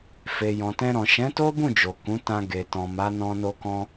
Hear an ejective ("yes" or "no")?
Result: no